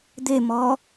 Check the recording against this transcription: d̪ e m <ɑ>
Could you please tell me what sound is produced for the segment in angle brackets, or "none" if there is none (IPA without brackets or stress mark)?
ɔ